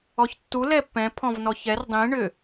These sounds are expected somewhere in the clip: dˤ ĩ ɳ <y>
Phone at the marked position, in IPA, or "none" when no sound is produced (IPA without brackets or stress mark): ʏ